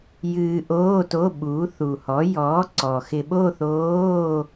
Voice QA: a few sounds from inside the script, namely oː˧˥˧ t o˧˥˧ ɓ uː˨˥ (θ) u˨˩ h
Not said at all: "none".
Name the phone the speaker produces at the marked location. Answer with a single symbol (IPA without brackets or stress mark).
θ